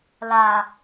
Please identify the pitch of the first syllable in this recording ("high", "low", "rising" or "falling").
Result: low